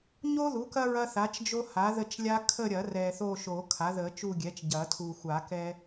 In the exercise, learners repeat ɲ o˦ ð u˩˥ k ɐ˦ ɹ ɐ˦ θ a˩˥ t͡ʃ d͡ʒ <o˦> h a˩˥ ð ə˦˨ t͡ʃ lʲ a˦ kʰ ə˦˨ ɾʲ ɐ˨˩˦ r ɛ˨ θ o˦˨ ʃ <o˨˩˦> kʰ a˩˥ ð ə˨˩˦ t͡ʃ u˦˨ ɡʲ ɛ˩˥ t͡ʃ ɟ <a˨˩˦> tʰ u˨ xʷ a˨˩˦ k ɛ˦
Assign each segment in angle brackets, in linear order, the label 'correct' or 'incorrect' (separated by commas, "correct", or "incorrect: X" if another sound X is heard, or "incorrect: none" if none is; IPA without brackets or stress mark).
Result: correct, correct, incorrect: ɐ˨˩˦